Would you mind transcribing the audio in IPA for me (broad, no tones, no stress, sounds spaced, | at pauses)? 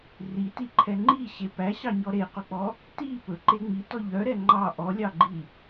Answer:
r i t i ǃʰ ɛ ŋ͡ǃ i ɕ e p æ ɕ ɑ ɲ ɔ ɾ e q ɵ k͡p ɔ | t i p ɵ ǃ e ŋ͡m i t ɔ ʎ œ ɾ ɛ ŋ͡ǃ ɑ ʔ ɔ lʲ ɑ ɡ͡ǃ i